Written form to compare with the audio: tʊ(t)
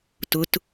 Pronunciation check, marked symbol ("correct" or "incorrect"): correct